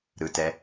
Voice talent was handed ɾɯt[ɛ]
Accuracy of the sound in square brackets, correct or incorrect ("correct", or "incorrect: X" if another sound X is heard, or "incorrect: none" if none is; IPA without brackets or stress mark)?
correct